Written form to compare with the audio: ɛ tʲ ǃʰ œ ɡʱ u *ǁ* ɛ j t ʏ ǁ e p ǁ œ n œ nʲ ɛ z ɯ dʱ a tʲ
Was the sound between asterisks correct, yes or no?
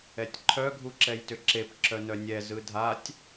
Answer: yes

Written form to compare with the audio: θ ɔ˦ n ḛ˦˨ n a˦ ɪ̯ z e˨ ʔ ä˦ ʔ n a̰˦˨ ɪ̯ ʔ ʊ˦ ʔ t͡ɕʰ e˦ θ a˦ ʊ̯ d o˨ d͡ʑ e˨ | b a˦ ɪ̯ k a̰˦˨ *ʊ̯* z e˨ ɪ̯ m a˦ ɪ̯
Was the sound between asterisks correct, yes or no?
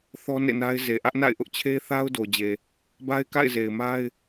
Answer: no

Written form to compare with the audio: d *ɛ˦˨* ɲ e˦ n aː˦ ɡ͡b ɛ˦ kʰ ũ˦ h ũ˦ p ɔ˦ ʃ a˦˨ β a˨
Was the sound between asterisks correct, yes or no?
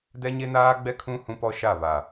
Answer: no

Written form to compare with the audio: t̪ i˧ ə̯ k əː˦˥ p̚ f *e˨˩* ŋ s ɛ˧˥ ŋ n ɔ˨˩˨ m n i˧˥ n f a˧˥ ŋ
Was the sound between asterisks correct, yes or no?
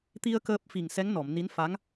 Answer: no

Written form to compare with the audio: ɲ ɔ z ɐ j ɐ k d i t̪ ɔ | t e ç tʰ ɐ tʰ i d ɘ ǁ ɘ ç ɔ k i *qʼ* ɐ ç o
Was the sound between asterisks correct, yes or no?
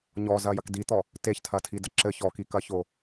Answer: no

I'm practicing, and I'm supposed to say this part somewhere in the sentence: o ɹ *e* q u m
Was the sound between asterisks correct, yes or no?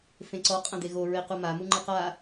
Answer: yes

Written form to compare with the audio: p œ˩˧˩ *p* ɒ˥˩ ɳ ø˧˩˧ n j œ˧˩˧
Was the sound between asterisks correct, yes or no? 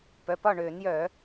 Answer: yes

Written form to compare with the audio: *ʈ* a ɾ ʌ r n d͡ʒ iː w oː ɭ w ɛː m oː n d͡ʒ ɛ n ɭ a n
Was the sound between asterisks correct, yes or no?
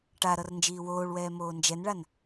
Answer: yes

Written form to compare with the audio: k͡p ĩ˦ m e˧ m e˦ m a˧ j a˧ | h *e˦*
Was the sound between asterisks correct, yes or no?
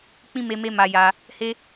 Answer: yes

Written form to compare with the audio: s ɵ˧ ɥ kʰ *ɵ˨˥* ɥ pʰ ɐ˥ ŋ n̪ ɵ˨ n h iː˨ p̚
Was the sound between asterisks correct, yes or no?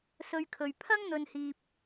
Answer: no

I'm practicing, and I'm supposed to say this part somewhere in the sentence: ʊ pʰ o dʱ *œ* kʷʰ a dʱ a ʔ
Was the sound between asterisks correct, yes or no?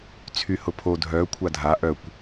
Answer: yes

